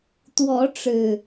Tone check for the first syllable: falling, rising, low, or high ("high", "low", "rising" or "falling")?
rising